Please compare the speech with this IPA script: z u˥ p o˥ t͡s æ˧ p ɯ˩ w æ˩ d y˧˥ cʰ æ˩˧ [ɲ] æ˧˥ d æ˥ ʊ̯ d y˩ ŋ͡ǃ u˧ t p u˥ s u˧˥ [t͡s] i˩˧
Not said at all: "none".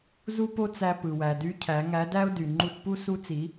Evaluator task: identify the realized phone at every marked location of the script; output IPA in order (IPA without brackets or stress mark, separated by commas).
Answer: ŋ, t͡s